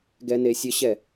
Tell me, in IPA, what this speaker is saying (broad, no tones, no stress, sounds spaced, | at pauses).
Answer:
ɡ ɛ n e sʲ ə ɕ ɛ